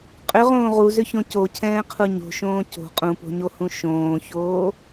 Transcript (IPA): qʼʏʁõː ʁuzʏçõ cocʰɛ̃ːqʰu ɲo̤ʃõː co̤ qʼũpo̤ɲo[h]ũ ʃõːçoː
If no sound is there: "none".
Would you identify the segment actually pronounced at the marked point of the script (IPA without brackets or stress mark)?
h